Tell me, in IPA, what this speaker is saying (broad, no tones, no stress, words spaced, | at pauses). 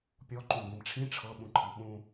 pʲɔ ǃũɡ͡bĩmʈ͡ʂʰĩ ʈ͡ʂʰɤ ɓũǃʰiɓũ